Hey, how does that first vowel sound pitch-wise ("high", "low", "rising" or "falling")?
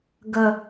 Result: low